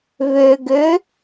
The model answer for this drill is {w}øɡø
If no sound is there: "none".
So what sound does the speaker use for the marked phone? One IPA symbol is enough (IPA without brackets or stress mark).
β